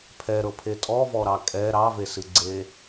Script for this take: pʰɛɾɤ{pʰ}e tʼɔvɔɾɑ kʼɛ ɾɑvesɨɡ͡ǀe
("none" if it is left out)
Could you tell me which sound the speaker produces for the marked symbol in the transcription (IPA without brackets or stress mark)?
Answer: pʰ